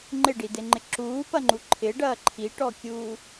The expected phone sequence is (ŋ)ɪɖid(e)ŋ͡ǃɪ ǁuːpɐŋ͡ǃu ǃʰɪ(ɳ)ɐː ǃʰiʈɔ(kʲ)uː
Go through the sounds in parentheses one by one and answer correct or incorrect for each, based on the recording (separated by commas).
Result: incorrect, correct, incorrect, correct